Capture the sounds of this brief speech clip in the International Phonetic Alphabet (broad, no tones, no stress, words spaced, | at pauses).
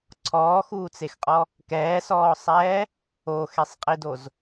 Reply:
ǀʰɔːxuːt͡sexqʼɔ | kɛːsɔːsˤɛː | oxesˤqʼidoz